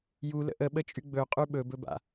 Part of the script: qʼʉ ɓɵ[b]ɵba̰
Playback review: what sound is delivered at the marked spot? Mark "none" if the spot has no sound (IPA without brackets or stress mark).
b